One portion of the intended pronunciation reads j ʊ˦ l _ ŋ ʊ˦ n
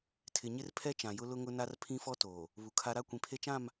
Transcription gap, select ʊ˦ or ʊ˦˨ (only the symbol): ʊ˦